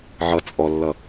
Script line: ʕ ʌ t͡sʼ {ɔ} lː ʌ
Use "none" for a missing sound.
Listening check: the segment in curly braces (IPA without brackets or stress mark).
ɔ